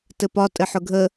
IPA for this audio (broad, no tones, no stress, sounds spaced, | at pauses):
t ɘ p ɒ tʼ ɘ ħ ʊ ɡʱ ə